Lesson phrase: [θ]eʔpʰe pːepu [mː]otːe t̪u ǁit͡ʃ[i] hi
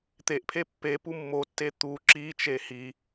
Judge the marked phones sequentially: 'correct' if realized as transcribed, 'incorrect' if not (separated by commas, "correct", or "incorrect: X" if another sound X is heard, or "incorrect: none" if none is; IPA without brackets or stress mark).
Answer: incorrect: t̪, correct, incorrect: e